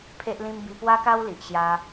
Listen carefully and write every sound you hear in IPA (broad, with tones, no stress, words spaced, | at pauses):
pʰe˦ʔlĩ˦m bi˧pwa˦ka˦w li˨ʔɕja˧